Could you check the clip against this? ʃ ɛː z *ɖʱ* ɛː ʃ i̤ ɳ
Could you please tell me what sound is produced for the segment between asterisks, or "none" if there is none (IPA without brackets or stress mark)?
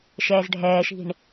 ɖʱ